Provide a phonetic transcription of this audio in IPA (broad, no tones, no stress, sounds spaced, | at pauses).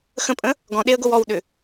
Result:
x ə̃ pʼ ə̃ | ɡ ɔ̃ ɗ e ə̯ ɡ o w ɔ w ɗ ʏ